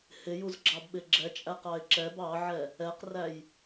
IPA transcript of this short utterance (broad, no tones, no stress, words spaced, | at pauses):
hɪjuzɡ͡ǁɑb ɓɪɡ͡ǁɛt͡ʃʼæq ɑɪ̯ǁɛb ɑʕɛ | ɛqræj